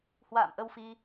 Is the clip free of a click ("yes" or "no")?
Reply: yes